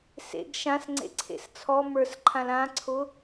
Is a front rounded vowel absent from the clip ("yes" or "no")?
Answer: yes